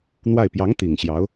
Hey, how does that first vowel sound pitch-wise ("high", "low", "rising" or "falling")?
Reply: falling